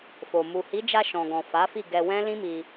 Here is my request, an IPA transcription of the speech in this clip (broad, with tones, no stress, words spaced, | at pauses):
fo˨ mu˨hi˨˦d͡ʒa˧ ʃɔ̃˨ɡɔ̃˨ fa˨˦fi˦˨ ɡɛ˧wɛ̃˦ lĩ˦mi˧